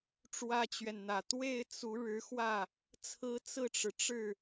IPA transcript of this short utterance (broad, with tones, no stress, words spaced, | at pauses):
ʈ͡ʂwä˥t͡ɕɥɛ˨nn̪ä˨˩ t̪we˥˩ɪ̯ t͡su˧˥ɻɻ̩˧˥xwä˥˩ | t͡sʰɹ̩˥t͡sɹ̩˥˩ʈ͡ʂɻ̩˩ʈ͡ʂɻ̩˥˩